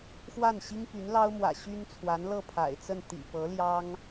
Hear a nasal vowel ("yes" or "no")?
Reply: no